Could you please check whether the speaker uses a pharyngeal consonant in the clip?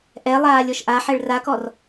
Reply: yes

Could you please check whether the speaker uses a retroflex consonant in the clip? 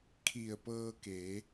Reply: no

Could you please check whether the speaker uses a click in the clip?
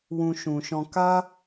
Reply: no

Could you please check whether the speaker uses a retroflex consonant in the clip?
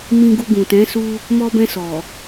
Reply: no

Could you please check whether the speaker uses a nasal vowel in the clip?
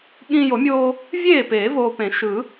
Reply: yes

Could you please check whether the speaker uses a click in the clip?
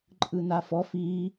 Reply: yes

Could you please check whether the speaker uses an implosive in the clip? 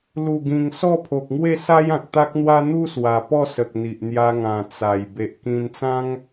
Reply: no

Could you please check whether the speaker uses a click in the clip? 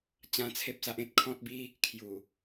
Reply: no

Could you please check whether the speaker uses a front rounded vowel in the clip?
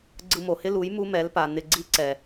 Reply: no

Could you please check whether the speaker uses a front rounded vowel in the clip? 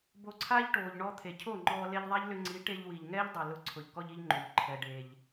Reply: yes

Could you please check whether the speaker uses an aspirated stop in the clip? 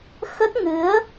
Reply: no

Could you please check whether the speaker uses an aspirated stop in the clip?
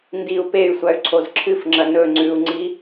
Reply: yes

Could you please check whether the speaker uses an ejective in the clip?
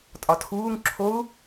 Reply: yes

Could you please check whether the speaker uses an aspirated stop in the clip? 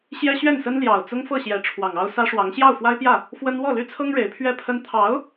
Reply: yes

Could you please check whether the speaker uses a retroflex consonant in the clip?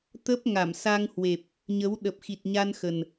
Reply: no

